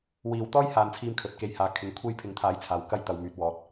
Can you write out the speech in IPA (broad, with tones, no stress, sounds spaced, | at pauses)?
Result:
w iː˨˧ w t̪ ɔː˥ j h aː˨˧ n t͡sʰ iː˧ m kʰ ɵ˨ t̚ k e˨ j h aː˨ kʰ ɪ˨˥ ŋ kʷʰ e˧ j pʰ ɪ˨˥ ŋ t̪ʰ aː˨˥ j t͡sʰ aː˨ w k ɐ˧ j t̪ ɐ˨ w m yː˨ t̚ w ɔː˨˥ t̚